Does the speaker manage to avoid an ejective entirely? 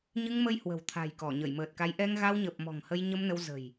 yes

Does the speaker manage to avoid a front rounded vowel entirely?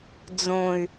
no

